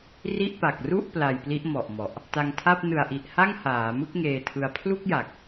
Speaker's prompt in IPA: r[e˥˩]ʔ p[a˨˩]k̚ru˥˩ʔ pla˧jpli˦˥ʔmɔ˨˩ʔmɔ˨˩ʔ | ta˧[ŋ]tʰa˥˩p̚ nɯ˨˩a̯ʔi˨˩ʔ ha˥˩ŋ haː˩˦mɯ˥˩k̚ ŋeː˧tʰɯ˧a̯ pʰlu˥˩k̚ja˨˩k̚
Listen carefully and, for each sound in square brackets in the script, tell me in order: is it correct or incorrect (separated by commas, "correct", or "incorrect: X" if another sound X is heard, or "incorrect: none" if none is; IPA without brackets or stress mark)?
incorrect: i˥˩, correct, correct